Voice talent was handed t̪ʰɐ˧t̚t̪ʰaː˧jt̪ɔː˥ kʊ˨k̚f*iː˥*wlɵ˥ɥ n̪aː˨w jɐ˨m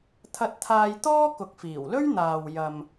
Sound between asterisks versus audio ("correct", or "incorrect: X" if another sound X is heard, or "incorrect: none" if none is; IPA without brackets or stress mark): incorrect: iː˨˩